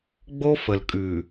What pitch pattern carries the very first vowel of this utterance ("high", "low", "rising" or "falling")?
high